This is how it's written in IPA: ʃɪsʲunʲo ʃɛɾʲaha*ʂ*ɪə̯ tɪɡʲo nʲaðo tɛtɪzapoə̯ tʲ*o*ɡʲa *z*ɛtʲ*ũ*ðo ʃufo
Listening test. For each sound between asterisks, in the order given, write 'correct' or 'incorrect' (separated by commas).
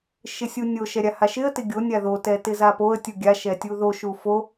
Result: incorrect, incorrect, incorrect, incorrect